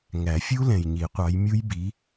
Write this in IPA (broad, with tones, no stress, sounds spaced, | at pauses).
ŋ æ˨˩˦ fʲ u˦˥ l ɛ̃˨ j ɲ i˨˩˦ qʷ ɑ˨˥ j mʲ u˦˥ j b i˨˥